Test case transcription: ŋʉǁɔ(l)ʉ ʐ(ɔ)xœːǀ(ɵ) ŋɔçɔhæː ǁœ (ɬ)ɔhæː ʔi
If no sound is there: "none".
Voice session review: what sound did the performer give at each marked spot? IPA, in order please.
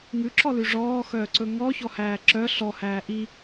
l, ɔː, ɵ, ɬ

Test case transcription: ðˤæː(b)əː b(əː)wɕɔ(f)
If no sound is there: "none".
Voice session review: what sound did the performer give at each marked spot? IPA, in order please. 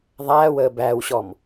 w, æː, m

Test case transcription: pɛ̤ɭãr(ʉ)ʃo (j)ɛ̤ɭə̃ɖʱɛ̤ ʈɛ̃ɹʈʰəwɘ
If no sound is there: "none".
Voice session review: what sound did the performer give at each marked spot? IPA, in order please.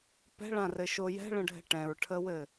ɘ, j

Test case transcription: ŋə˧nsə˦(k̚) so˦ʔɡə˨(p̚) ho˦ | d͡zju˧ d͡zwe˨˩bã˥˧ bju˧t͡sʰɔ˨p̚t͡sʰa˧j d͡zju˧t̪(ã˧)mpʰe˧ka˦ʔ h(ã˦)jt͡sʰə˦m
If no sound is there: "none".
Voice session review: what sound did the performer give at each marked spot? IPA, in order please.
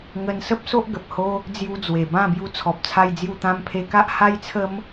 p̚, p̚, ã˧, a˦

